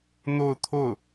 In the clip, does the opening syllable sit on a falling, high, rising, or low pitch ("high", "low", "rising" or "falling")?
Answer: falling